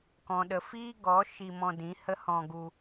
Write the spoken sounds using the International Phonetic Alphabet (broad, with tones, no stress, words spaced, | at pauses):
kɔ̃˨ɗə˨fiː˦ɡɔ˨˦ ʃi˧mɔ̃˧dĩ˨˦ hə˦hɔ̃˧ɡu˧